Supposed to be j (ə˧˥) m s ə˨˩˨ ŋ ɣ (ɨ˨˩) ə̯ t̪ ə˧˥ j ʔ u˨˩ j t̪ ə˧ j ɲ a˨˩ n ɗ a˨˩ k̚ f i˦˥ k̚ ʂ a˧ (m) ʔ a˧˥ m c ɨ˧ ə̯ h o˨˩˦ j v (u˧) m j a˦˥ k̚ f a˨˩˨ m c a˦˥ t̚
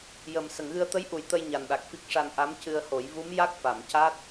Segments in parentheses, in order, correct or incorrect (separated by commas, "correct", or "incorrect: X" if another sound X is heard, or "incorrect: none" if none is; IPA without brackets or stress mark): incorrect: ə˨˩, incorrect: ɨ˧, incorrect: n, incorrect: u˧˥